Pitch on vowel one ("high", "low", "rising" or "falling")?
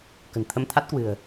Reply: low